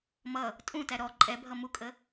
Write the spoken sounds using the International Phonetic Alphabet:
mʌ | tʼũtæ ɾɔ ǃʼɛbʱʌ mukʼə

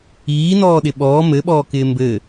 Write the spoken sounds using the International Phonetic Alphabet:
iːnɔːɗɪ ɓɔː mɘɓɔːkɪː mbɘ

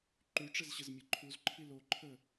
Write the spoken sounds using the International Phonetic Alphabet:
ǃʉʈ͡ʂɘzɕəzmʲɘ ǃʰuzǃʰi loǃʰə

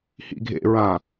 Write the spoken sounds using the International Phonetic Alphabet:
hḭɡʱḛɹã

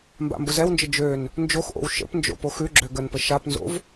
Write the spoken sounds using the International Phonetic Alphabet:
mba̰mbʊzɛwnd͡ʒə d͡ʒøn | nd͡ʒoxʔo̰w ʃə̰pnd͡ʒo̰ poxʉɡ͡ǁø ɡənpə ʃapnzo̰v

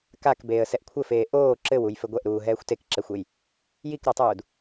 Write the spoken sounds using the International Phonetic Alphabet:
kak beːə̯sɛʔkʷʰɘfeː ʔoː ǁɘwuj fɘɡʷɛʔɾuː ɦɛːxʷtekǁɛxʷej | jikɾotˤuːd

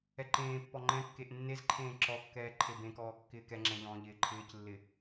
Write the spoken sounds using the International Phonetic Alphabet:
ɛǃẽːpːɔ ŋ͡ǃɛ̃kːeʔ nːezǃʰẽː ǁɔkːɛː ǃʰebẽkɔː kːɪːkɛŋ͡ǁɛ̃ ʎɔ̃ːʎɪːǃʰɪːclːɪ

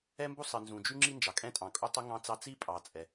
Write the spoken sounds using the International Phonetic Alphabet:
ɛ˥mbu˥sˤɨ˩ nzũ˩d͡ʒy˥ŋ͡ǁi˥ nd͡ʒɑ˩kʼɛ̃˥tʼɑ̃˩ kʼu˥tˤu˥ŋɑ̃˥t͡sɑ˥ t͡si˥pʼɑ˩ t͡sʼɛ˩

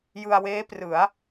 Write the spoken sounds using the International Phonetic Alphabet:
jɯ˧a̯weː˦˥prɯ˩˦a̯

